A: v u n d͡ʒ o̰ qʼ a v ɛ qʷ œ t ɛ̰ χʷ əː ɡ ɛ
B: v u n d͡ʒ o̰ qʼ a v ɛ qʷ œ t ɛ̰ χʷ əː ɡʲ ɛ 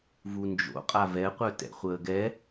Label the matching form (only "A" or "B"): A